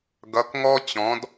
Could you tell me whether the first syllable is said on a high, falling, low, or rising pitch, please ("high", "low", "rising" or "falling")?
rising